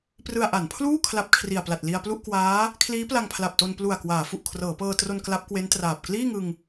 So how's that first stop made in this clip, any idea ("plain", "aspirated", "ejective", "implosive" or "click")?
plain